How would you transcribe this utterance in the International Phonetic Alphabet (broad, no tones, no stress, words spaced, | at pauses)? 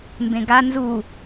mbẽɡa nzu